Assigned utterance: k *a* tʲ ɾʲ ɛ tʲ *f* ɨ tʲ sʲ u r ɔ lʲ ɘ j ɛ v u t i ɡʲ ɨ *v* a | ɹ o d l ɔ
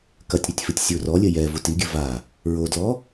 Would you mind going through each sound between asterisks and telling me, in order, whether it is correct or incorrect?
incorrect: ɐ, correct, correct

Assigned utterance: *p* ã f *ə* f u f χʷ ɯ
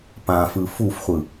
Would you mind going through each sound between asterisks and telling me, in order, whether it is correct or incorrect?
correct, incorrect: ɯ

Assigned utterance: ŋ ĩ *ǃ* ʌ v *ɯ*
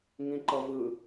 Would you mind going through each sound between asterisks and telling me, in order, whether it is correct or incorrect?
correct, correct

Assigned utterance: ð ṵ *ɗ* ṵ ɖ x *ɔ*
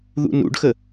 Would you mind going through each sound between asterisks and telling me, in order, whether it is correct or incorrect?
incorrect: n, incorrect: ə

